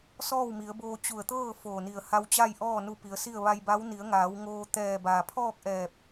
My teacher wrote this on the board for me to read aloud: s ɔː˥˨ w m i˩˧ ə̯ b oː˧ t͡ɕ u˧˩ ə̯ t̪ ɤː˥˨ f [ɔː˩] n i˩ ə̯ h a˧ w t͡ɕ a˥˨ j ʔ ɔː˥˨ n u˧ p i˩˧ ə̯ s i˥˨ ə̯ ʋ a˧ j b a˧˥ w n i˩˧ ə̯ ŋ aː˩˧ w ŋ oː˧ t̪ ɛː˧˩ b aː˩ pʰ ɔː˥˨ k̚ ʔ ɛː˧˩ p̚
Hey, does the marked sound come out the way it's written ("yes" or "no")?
no